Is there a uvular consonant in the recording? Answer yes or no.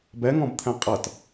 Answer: yes